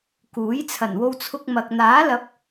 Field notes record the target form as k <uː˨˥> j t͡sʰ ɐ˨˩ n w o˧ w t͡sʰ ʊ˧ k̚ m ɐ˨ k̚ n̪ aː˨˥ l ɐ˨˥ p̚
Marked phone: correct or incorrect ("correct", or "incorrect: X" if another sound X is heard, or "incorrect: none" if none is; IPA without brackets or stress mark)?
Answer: correct